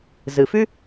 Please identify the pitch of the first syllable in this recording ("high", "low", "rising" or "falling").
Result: low